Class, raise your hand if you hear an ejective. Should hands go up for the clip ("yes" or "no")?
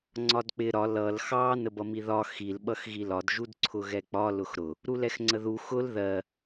no